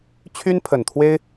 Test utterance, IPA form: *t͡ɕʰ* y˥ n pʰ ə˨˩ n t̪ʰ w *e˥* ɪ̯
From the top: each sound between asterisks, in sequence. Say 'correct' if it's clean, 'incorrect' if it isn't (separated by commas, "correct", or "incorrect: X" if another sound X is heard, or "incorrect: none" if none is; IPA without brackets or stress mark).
correct, correct